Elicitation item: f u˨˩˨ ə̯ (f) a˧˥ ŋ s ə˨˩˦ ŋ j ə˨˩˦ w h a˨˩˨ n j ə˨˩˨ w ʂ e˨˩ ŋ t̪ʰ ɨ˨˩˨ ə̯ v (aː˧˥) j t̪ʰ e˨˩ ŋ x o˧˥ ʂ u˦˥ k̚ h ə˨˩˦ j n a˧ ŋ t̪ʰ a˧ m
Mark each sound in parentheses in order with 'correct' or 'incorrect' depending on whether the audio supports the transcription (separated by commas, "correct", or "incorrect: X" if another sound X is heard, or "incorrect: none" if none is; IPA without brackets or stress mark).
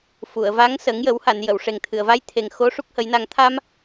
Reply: incorrect: v, incorrect: a˧˥